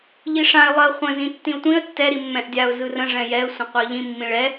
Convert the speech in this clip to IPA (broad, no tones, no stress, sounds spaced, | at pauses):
ʎ i ʂ ã ɪ̯ lˠ ɜ χʷ ə̃ z ĩ tː ĩ ʊ̯ tʷ ĩ ə̯ tː ɛ ɾ i mː ɛ̃ ʔ dʲ a ʊ̯ z ɯ r ə̃ ʐ ɛ̃ j ɛ ə̯ sʷ ə̃ qʷ ɛ ə̯ ʎ ĩ mː ĩ ɭ ɛ